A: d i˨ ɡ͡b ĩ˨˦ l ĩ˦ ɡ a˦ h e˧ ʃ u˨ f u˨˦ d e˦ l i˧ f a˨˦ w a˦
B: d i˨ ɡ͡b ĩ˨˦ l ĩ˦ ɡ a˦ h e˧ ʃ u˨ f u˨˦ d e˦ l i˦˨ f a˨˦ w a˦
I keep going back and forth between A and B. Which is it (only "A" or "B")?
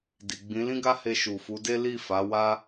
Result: B